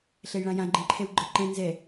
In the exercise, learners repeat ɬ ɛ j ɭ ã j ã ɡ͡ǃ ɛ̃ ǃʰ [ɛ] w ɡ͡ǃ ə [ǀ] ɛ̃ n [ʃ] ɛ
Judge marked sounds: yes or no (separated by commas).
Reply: yes, no, no